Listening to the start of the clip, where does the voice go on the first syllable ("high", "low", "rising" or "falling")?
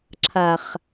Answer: low